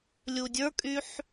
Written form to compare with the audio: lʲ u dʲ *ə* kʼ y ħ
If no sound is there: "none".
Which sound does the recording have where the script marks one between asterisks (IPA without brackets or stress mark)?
ə˞